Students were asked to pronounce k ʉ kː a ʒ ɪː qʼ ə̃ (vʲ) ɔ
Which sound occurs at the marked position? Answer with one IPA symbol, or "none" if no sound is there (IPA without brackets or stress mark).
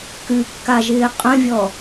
vʲ